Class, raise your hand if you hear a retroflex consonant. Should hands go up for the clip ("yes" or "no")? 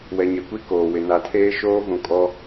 no